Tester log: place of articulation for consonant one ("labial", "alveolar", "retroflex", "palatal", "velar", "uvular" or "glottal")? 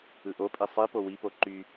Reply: glottal